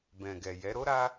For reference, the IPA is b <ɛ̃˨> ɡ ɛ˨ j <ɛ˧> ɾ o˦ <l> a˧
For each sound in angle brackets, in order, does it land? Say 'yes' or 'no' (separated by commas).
yes, no, no